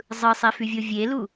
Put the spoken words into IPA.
zˤ ɯ sˤ e f y vʲ o vʲ e l u

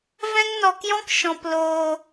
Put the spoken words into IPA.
v ɛ̃˦ ŋ n ɔ˧ k j ɔ̃˦ k ʃ ɔ̃˧ p l oː˧

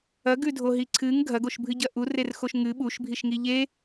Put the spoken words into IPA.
ɐ ɡ ʉ dʱ o ɦ i ǀʰ ɨ ŋ ɡʱ ɐ ɡ o ʃ bʱ ɨ ɟ ɐ ʔ u r e r x o ʃ ŋ ɨ ɓ u ʃ bʱ i ʃ ŋ i ʎ e

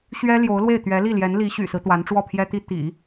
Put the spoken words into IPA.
ɕ ɥ ɛ˥ l j o˧˥ ʊ̯ l w e˥˩ ɪ̯ t̪ ɥ ɛ˧˥ l i˥˩ l j ɛ˧˥ n l i˧˥ ɕ y̰˨˩ s ɹ̩˦ t̪ w a˧˥ n ʈ͡ʂ w ɔ˥˩ pʰ j ɛ˥ t̪ i˥ t̪ ḭ˨˩˦

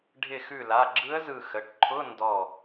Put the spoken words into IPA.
ɖʱ ɪ˧˩ x ʉ˧˩ l a˩˧˩ ɡ͡ǁ ɯ˧˥ ə̯ z ɯ˧˩ x ə˩˧˩ ʈ ǃʰ ʊ˧˥˧ n d ɔ˧˩

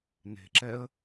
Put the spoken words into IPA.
n e̤ ǁ ɛ ə̯

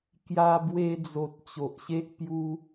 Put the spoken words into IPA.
k j a˧ b w e˧ d͡z o˨ t̚ t͡ɕ o˨ ʔ ɕ e˦ ʔ p j u˦

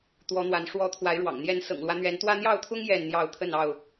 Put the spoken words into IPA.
t̪ w ɔ˨˦ n̪ w a˨˦ n ʂ w ɔ˨˦ t̪ʰ w a˨˦ ɪ̯ ɻ w ɑ̰˨˩ ŋ n̪ j ɛ˨˦ n s ɤ̰˨˩ ŋ l w ä˨˦ n̪ ɥ ɛ˨˦ n t̪ w ä˦ n̪ j ɑ˥˨ ʊ̯ t̪ʰ ʊ˦ ŋ j ɛ˥˨ n n̪ j ɑ˥˨ ʊ̯ t̪ʰ ə˥˨ n ɑ˥˨ ʊ̯

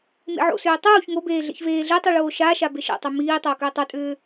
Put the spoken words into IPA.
m ḛ ʕ o̰ s ʏː tˤ uː ç ŋ o b eː ɮ ḛ ç v eː ɮ e tˤ u ɭ oː ʃ a ʃ a b e ʃ ɛ̰ tˤ u m iː tˤ oː k ʏː tˤ o tʼ ʏː

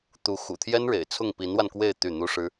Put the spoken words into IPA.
t̪ u˧˥ x ṵ˨˩ t̪ʰ j ɛ˥ n ɻ ḛ˨˩ ɪ̯ t͡sʰ ʊ˥˩ ŋ p i˧˥ n w a˧ n k w e˥˧ ɪ̯ t̪ y˥˩ n̪ u˥ ʂ ɻ̩˥

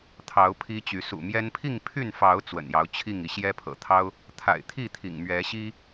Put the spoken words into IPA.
t̪ʰ ɑ˨˦ ʊ̯ pʰ i˦ t͡ɕ y˨˦ s ṵ˨˩ m j ɛ˦ n pʰ i˥˨ ŋ pʰ y˥˨ n f ɑ˨˦ ʊ̯ t͡s w ə̰˨˩ n j ɑ˨˦ ʊ̯ t͡ɕʰ i˥˨ ŋ i˨˦ ɕ j ɛ˦ pʰ ɤ̰˨˩ t̪ʰ ɑ˦ ʊ̯ | t̪ʰ a̰˨˩ ɪ̯ t̪ʰ i˥˨ t̪ʰ ḭ˨˩ ŋ m ɥ ɛ˨˦ ɕ i˦

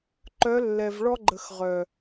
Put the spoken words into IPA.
ǃ œ˨˦ lː ɛ˨ v ɭ ɔ˦ ɡ͡ǃ ə˨ x ʁ œ˨

